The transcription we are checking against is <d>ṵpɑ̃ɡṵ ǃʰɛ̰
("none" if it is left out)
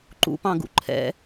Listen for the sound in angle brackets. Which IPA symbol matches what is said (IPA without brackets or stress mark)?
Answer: ǃ